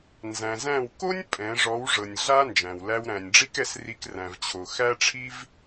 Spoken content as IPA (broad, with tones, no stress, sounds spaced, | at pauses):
n z æ̃˨ z æ̃˦˨ w k o˦ nʲ pʼ ɛ̃˨˦ ʐ ɔ˨˦ w ʐ ɤ˨ nʲ ɮ a˦ n d͡ʒ æ̃˨ w l æ˧ w ɾ æ̃˨ nʲ ɖ͡ʐ i˦ k ɛ˧ s r i˧ k r æ̃˨ v t͡ɕʰ o˨ x æ˦ ʈ͡ʂʰ i˦ v